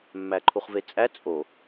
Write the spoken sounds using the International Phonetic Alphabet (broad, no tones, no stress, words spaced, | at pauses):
mːæǃʰuχvet͡sʼæ t͡sʼo